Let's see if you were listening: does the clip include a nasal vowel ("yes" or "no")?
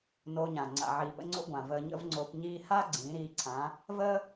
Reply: yes